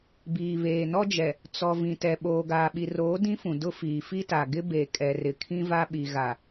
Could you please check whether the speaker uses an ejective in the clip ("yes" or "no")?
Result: yes